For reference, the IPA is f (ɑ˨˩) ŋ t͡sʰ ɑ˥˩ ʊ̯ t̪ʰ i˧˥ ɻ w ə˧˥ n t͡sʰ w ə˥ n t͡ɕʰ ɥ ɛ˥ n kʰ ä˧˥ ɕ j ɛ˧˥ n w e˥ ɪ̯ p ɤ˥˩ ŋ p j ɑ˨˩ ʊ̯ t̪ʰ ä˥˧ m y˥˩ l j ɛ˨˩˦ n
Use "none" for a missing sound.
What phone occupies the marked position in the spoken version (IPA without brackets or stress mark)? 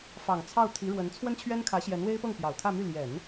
ɑ˨˩